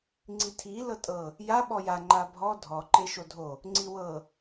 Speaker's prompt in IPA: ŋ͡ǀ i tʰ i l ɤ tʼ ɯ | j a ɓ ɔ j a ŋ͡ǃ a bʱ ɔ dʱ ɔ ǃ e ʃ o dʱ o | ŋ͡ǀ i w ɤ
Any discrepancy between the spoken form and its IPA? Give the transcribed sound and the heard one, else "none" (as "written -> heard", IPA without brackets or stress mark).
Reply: ɯ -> ɤ